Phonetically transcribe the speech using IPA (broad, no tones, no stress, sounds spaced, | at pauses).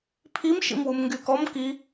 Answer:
pʰ i m ʃ ḭ m w u m ŋ ɡ y k ɔ m k i